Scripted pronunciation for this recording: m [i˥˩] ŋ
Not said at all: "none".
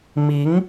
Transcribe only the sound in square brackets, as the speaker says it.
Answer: i˧˥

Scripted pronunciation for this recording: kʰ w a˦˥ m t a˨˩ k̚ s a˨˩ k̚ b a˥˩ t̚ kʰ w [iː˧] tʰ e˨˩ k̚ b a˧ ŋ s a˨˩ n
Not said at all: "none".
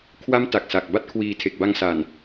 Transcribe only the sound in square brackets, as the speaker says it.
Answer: iː˧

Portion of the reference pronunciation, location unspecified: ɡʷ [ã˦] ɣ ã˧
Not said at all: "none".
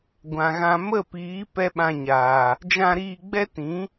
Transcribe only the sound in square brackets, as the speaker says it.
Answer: ã˨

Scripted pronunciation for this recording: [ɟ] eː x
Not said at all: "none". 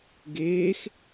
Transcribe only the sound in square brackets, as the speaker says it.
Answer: ɡ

